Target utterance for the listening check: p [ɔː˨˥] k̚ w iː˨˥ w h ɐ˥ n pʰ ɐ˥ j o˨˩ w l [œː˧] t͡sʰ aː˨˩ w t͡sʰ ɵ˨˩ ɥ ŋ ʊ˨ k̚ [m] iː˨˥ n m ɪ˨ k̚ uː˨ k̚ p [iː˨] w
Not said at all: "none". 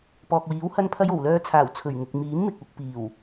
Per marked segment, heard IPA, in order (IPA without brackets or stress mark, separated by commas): ɔː˨, œː˧, m, iː˨˩